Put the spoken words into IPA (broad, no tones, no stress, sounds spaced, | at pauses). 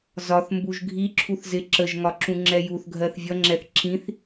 z ɒ θ m b u ʒ ɡʱ i ǁʰ u θ z ɪ ǁ ə ʒ ŋ ɒ ǁ ũ ŋ͡ǁ ɛ j u θ ɡʱ ɜ θ vʲ ʌ ŋ͡ǁ ɛ θ ǁ ĩ θ